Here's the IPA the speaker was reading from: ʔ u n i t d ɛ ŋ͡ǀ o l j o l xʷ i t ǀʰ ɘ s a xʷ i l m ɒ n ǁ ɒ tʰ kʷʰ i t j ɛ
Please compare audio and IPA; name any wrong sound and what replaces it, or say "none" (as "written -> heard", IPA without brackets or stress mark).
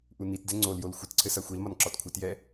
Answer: tʰ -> t